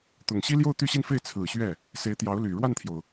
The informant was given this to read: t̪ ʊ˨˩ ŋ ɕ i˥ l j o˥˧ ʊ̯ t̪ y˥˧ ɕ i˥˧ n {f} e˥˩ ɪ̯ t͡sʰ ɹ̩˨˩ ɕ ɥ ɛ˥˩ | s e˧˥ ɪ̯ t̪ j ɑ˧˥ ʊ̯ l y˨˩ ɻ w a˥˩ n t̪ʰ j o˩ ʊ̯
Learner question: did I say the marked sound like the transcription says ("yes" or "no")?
yes